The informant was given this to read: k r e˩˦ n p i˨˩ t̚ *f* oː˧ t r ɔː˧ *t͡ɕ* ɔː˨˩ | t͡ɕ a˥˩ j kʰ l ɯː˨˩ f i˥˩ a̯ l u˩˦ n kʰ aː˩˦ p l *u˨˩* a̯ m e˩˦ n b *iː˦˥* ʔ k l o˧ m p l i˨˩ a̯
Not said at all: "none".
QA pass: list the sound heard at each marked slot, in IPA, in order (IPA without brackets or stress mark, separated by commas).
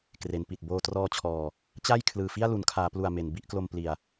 b, t͡ɕʰ, u˨˩, i˦˥